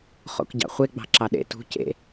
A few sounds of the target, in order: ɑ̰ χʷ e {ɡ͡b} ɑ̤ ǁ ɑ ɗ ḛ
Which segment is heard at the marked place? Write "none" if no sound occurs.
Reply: ɡ͡b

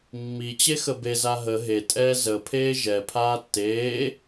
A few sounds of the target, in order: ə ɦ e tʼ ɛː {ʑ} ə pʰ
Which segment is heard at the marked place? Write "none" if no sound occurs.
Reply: z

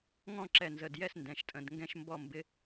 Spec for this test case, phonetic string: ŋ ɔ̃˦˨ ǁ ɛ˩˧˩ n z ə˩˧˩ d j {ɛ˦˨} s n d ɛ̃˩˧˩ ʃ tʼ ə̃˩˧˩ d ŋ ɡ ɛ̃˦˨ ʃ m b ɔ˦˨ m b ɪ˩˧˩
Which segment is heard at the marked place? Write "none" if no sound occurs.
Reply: ɛ˦˨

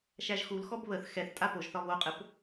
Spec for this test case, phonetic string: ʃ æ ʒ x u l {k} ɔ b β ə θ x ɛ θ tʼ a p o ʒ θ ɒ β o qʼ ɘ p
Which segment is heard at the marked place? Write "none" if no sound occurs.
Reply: x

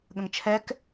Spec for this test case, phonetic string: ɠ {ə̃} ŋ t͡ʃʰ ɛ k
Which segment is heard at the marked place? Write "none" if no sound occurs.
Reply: ə̃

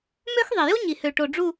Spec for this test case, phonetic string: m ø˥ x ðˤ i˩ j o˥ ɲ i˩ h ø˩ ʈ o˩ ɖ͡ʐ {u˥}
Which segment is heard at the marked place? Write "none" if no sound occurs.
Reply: u˧˩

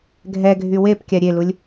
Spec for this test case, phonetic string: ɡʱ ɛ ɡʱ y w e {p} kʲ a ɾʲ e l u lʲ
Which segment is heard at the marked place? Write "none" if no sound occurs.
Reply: p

